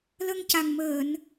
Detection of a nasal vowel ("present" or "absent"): absent